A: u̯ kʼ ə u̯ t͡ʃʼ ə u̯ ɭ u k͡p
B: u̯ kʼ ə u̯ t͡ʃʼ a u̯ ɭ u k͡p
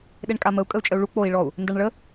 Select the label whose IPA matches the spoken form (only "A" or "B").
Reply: A